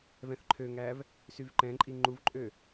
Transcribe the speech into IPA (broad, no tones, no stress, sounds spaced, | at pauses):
v ɛ̃ θ ǃʰ ø ŋ æ v | s y v ǃ ɛ̃ ǃʼ i ŋ͡ǃ u v ǃʼ ø